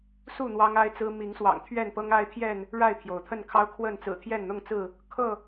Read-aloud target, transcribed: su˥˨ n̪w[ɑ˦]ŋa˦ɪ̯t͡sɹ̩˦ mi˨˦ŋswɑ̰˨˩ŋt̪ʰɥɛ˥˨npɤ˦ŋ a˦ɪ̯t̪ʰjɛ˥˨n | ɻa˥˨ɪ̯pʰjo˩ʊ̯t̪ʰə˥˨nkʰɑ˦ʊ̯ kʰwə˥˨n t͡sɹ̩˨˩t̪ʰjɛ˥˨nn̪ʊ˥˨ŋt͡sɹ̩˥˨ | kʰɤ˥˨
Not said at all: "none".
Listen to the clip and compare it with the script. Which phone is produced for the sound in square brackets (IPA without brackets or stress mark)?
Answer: ɑ˦